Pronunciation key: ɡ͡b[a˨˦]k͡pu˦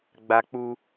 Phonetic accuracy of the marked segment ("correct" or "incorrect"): incorrect